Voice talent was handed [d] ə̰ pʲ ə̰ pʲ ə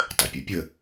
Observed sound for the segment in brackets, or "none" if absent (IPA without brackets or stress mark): tˤ